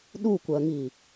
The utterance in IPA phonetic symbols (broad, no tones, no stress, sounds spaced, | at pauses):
ɗ u kʷ ɜ ŋ i